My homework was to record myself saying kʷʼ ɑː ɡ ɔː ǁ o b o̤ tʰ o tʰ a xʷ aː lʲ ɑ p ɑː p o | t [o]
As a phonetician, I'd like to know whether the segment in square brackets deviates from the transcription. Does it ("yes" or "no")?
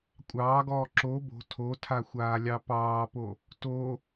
no